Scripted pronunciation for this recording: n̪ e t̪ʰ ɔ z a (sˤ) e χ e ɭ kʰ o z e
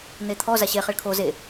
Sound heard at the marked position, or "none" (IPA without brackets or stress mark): ɕ